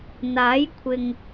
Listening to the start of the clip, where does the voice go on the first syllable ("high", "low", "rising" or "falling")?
rising